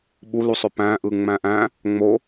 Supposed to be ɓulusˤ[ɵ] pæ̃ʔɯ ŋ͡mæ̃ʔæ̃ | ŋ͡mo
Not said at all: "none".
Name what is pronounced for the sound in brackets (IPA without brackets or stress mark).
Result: ø